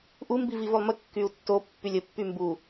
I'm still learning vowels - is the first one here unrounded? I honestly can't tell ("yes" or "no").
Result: no